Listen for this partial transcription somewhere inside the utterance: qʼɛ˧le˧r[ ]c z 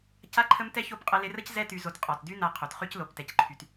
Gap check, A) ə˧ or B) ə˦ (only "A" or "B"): B